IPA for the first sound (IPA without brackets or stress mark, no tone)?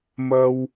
m